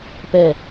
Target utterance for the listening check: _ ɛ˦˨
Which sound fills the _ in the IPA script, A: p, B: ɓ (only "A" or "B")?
A